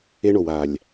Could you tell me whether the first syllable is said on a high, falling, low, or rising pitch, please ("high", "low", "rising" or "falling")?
high